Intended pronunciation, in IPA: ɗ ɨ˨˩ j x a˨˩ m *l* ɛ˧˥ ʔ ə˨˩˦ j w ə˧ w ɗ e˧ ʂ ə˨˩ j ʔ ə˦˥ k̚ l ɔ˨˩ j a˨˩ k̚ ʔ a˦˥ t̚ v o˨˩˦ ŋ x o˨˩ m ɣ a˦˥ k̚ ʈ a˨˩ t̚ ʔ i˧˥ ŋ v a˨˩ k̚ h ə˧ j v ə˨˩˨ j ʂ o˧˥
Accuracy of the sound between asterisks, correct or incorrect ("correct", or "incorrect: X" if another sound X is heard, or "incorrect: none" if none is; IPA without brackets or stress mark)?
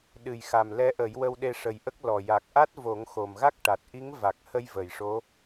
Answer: correct